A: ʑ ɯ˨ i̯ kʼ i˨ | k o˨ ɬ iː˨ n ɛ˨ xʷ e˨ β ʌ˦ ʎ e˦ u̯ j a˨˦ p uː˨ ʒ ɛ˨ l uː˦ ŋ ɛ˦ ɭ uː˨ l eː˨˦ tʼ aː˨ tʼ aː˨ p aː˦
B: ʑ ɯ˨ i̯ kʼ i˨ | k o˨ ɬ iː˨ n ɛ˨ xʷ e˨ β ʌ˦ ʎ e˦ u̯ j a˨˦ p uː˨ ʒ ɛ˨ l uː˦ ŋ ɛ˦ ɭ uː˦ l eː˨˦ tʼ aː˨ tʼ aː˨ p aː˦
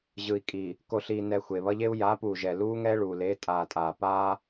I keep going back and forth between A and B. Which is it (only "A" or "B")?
A